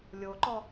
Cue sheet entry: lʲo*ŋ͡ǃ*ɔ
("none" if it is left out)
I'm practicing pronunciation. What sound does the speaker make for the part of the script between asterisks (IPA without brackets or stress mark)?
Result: ǃ